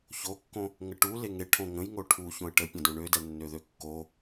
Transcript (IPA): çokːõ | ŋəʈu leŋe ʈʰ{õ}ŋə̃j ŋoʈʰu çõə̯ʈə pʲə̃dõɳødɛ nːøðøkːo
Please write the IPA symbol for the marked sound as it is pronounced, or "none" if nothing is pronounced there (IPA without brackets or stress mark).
õ